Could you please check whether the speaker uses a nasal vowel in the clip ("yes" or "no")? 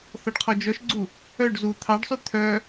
no